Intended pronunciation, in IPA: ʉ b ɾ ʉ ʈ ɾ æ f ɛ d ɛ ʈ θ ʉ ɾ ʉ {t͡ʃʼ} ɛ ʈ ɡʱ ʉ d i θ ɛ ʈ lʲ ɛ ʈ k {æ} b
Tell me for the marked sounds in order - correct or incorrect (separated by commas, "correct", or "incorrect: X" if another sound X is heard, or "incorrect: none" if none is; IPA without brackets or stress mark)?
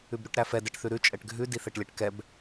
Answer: correct, incorrect: ɛ